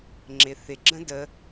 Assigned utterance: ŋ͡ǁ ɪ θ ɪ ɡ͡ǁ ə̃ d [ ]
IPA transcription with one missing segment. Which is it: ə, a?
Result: ə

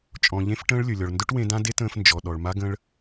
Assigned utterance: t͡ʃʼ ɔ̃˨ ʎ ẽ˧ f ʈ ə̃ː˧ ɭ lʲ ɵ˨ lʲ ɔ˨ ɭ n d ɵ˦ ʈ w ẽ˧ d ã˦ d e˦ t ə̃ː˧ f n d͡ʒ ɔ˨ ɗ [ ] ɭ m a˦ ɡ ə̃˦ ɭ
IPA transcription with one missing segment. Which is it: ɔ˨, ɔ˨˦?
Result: ɔ˨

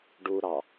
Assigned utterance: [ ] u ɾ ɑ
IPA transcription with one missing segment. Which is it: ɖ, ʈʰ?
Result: ɖ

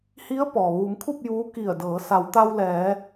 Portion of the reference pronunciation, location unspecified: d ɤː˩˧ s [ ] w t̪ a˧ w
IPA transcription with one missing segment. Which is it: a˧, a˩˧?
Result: a˩˧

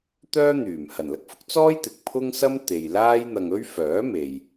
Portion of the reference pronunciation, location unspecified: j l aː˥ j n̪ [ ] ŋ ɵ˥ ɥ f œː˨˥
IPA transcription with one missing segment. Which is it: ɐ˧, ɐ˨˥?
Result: ɐ˧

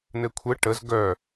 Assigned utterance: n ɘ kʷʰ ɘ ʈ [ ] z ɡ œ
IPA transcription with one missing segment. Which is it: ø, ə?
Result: ə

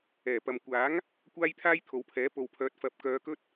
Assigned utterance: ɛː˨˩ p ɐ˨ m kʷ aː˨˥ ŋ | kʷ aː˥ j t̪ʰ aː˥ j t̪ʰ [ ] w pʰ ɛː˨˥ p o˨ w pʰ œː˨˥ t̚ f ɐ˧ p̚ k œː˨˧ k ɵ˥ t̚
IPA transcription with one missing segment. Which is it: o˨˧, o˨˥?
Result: o˨˧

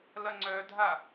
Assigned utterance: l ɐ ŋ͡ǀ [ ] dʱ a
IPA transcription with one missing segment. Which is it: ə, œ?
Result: œ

